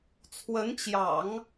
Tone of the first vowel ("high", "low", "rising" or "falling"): rising